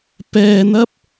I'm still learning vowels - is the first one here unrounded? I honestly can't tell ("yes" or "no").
yes